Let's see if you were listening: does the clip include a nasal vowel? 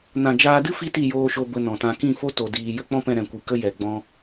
yes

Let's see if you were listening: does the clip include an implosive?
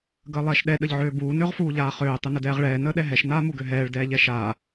yes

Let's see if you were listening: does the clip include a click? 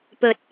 no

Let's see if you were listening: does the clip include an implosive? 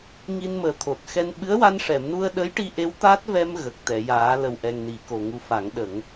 yes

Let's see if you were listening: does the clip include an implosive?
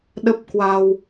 yes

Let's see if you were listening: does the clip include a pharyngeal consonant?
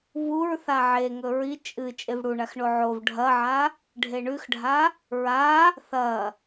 yes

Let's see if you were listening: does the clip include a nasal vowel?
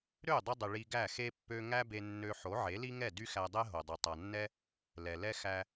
no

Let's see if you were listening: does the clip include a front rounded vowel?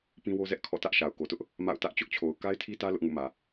no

